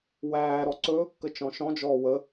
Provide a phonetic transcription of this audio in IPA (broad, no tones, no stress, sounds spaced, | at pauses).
w æː ɾ ɔ ǀ ɵː kː ə t͡ʃ ɔ̃ ʃ ɔ̃ d͡ʒ ɔː w ə